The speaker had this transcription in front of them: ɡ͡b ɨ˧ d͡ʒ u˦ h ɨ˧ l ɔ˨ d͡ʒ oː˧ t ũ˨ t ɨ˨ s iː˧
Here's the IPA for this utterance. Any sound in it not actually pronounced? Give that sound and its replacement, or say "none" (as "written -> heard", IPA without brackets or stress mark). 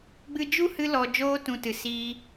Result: none